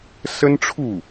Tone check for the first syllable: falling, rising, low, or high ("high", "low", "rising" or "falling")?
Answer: high